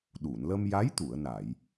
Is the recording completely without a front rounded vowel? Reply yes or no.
yes